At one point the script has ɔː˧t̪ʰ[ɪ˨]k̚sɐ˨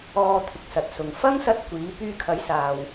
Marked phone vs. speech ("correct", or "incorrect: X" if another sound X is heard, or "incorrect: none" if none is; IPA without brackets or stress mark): correct